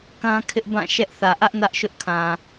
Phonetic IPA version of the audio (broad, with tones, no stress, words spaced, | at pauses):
kã˦kʰɪ˦ʔ bã˦˨ ʃɛ˦ʔθä˨ ʔä˦ʔ nä˦ʔʃʊ˦ʔkʰã˨